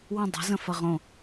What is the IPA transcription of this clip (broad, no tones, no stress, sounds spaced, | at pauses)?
w ə̃ dˤ ɛ̤ z ə̃ f ɐ ʁ õ